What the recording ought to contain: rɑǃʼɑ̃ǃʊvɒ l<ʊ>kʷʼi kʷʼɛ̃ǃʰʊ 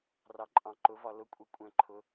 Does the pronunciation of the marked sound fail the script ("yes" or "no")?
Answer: no